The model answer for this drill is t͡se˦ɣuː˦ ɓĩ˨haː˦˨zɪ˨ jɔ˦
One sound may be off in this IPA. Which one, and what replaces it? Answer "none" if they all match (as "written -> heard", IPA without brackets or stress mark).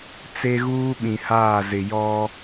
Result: none